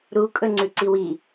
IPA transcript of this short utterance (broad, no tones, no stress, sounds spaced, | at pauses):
ɾ u kʼ ɵ ŋ͡ǀ ʉ ǀ i w i